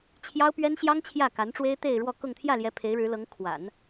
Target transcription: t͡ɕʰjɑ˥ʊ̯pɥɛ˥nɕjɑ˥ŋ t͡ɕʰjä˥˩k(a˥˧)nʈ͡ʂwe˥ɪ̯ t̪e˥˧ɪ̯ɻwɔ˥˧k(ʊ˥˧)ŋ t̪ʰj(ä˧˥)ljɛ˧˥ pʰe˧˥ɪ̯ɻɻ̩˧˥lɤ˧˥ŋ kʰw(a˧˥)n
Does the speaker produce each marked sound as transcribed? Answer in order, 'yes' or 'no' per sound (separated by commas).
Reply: no, yes, no, no